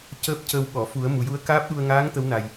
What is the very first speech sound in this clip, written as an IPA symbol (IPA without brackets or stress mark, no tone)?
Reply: c